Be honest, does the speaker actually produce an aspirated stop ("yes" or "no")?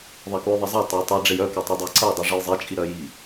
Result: no